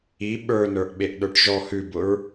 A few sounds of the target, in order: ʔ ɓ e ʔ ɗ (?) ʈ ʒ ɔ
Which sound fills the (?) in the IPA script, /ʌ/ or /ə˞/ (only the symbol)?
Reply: ə˞